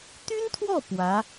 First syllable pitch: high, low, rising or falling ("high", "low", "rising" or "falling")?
high